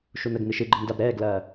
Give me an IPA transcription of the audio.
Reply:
ʃ u n ə ɡ n ɨ ʃ ɨ ɡ͡ǃ ə m d a b ɾ ɛː ɡ l ɐː

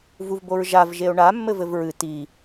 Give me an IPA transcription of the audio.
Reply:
v u v b o ɹ ʒ a v ʒ e o̯ ɳ a mː ɘ v ɘ v ɹ ɨ t i

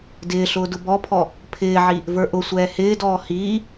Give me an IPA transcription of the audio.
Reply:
d ɪː ɬ ʊː d ʊ b ɔ pʰ ɔ | pʰ ɪː ʕ i | v ə˞ ʔ ʊ sʷ ɛː h ɪː d ɔː h iː

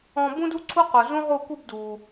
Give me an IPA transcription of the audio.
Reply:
ɔ̃˧ b ũ˦ d u˦ ǀʰ u˦ q o˨ z ũ˦ ʁ u˦˨ k u˦ b d u˨

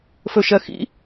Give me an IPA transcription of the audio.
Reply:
f ɵ ʃ ɜ x ḭ

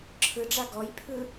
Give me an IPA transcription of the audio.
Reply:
ǁʰ ɯ ɖ͡ʐ a ɡ ɔ j pʰ ɯ

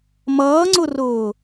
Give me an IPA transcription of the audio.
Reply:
m ʌː ŋ͡ǀ ʊ r ʊː

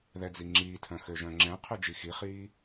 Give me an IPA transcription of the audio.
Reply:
ð ɛ d͡z i ŋ͡ǁ iː tʰ œ̃ x ø ʒ œ̃ ŋ͡ǁ ɛ̃ qʰ ʉ d͡ʒ i x i χ iː

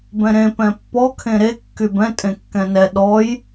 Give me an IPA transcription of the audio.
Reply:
b ɛ̃ ɾ ẽ p ɛ̃ pː ɔ kʰ ẽ ɾ e kː y b ɛ̃ tʼ ẽ kː ɛ̃ n ɛ ɗ ɔ j

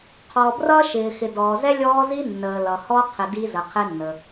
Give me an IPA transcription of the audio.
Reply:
qʰ ɔ˨ b r ʌ˦ ʃ ɪː˨ x ɪ˨ d ɔː˨ z ɛ˦ lʲ ɔː˦ z i˦ nː əː˨ l ʌ˨ h ɔ˦ qʰ ɪ˨ d i˦ z ə˨ qʰ ɪ˦ nː ə˨

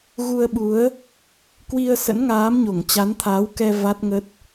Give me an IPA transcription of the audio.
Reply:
ɣ u˧ ə̯ ɓ u˨˦ ə̯ | k w i˧ ə̯ s ə̰˧˥ n ŋ aː˨˦ m ɲ o˧˩ ŋ t͡ɕ a˨˦ n t̪ʰ a˨˦ w k ɛ˧ v a˦˥ t̚ ŋ ə˦˥ t̚

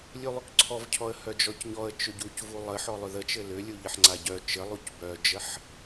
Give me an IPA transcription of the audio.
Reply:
lʲ u lˠ ʏ k ǀʰ ɔ v cʰ ɔ ə̯ h œ d͡ʒ ɔ c ɲ ɔ ə̯ t͡ʃ ʏ ɟ u c v u lˠ ə ħ ɔ lˠ ʏ ð ə t͡ʃ ɘ l ʏ lʲ u ʎ ɘ ħ ŋ͡ǀ a ɟ œ t͡ʃ ɘ lˠ u c b œ d͡ʒ ə ħ

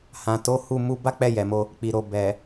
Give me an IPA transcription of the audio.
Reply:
h ã˨ t o˨˦ h u˦˨ m u˧ b a˦ k͡p ɛ˦˨ j ɛ˨ m o˧ | k͡p i˨ ɾ o˨ b ɛ˨

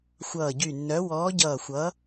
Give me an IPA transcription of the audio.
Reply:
xʷ ʌː˧˩ ɟ y˧˩ nː œ˨˥ w ɔː˨˥ ɟ ʌː˧˩ xʷ ʌ˨˥

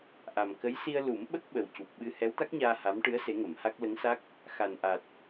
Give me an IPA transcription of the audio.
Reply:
ʔ a˨˩ m k ə˧˥ j s i˧ ə̯ l u˨˩˦ m ɓ ə˦˥ k̚ ɓ ə˨˩ w c u˨˩ p̚ ɓ ɨ˧ h ɛ˧˥ w t̪ a˦˥ k̚ ɲ aː˧ h a˧˥ m ʈ ɨ˧˥ ə̯ s e˧˥ ŋ ə˨˩˦ m h a˦˥ k̚ l ə˧˥ ŋ s a˦˥ k̚ | x a˨˩ n ʔ a˨˩ t̚

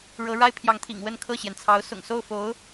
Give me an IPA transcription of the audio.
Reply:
ɻ ɤ˧˥ ɻ a˥ ɪ̯ pʰ j ɑ˧˥ ŋ t̪ʰ ḭ˨˩ ŋ w ə˥˧ n kʰ ɤ˥˩ ɕ j ɛ˩ n t͡sʰ ɑ˧˥ ʊ̯ s ʊ̰˨˩ ŋ s o˥˩ ʊ̯ f o˧˥ ʊ̯

